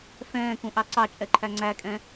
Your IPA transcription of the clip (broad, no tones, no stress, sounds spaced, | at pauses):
f ɛ̃ː k ũ ʔ ɑ ǀ ɑ t͡ʃʼ ɛ ǃʰ æ ŋ͡ǀ æ kʼ ɛ̃